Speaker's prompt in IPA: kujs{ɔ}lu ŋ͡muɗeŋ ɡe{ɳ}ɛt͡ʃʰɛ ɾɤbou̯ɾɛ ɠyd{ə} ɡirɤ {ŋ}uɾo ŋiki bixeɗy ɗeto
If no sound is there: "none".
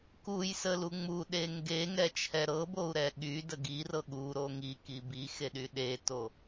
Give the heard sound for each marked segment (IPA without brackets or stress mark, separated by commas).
ə, ŋ, ə, ɠ